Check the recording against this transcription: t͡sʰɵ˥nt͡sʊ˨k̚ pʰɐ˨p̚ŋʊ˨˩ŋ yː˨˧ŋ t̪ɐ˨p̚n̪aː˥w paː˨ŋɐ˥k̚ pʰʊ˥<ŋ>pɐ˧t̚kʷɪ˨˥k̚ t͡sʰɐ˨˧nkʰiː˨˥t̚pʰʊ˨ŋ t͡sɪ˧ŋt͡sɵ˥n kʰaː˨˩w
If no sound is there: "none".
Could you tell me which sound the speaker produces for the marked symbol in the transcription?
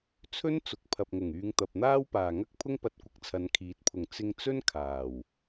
ŋ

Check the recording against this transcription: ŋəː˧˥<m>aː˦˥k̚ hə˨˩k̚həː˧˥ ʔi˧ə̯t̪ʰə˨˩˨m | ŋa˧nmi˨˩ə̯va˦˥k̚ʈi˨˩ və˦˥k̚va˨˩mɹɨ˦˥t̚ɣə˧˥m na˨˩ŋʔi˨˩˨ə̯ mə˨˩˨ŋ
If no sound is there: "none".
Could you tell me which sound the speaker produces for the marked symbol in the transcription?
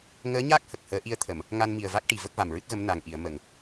ɲ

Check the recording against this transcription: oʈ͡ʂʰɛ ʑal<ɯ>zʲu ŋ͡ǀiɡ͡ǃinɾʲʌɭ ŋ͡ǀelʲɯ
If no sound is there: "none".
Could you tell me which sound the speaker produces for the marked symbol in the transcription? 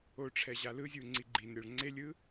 ɯ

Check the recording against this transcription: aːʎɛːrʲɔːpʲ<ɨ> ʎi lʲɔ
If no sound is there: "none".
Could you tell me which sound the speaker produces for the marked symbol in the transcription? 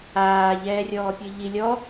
ɨ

